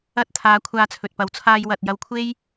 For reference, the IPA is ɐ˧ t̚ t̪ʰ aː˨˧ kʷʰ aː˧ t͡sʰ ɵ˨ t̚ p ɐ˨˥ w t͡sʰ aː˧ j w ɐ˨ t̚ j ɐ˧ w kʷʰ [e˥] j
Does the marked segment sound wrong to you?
no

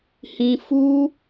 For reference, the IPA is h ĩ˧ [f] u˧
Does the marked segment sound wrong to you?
no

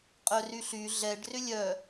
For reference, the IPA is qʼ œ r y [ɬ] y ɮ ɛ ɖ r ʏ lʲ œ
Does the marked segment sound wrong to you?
no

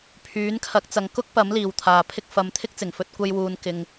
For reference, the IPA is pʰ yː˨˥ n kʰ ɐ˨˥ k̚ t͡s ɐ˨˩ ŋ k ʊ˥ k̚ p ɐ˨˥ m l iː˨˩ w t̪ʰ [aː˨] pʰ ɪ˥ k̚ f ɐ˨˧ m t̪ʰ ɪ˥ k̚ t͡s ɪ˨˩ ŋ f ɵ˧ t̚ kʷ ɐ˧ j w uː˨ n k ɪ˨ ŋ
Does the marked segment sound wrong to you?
no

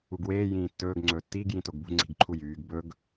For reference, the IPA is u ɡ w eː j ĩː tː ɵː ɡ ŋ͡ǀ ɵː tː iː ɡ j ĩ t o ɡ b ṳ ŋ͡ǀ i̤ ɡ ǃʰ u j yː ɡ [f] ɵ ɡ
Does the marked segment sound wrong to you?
yes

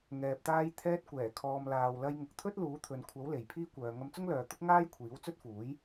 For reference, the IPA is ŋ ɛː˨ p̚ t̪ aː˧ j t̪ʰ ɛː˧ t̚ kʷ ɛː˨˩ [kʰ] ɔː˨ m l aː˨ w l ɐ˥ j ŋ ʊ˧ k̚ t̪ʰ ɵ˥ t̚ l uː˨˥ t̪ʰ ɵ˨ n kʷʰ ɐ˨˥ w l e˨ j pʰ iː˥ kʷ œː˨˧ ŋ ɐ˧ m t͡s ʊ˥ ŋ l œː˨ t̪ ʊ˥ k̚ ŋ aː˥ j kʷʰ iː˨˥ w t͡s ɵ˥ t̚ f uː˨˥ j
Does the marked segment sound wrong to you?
no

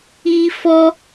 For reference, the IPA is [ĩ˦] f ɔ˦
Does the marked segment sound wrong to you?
yes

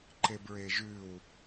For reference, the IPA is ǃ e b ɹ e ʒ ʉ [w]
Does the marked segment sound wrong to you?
no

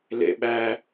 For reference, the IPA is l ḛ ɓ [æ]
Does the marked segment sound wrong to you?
no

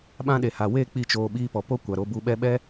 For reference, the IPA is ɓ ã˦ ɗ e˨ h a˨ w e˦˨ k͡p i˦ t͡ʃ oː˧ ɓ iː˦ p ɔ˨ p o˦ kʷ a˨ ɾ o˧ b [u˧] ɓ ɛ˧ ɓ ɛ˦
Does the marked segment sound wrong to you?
no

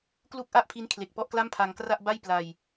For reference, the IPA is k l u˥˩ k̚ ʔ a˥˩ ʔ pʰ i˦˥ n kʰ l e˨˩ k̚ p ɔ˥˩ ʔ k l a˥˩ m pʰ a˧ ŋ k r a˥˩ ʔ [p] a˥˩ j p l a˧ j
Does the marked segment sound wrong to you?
yes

